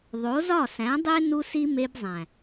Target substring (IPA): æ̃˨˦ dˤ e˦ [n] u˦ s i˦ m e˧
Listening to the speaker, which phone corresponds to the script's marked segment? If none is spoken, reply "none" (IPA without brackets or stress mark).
n